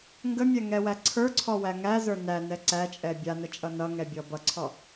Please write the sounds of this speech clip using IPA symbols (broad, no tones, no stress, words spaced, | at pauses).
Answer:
ŋɡəmʲɛŋɛwæ ǀʰə˞ǀʰɔwæ ŋæzə˞ nænɛ ǀæt͡ʃʼɛ bʲanət͡ʃʼʌ nʌŋɛbʲɔ bʌǀʰɔ